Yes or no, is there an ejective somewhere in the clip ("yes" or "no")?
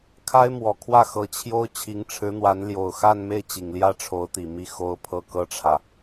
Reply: no